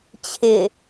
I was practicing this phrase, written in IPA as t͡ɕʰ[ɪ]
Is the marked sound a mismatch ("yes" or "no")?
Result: no